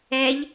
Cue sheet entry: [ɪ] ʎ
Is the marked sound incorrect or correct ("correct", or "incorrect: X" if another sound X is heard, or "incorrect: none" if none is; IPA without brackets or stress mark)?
incorrect: ɛ